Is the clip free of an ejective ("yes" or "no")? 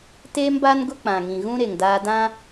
yes